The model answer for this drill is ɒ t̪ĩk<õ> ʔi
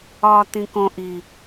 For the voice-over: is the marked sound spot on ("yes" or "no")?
yes